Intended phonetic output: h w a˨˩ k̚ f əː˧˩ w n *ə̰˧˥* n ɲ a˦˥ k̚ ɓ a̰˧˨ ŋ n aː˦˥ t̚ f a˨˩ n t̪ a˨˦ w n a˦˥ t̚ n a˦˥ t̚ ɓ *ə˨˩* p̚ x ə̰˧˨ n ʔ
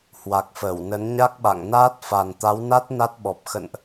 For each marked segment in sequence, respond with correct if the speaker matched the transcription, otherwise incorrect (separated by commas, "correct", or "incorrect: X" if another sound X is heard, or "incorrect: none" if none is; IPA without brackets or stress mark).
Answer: incorrect: ə˨˦, incorrect: ɔ˨˩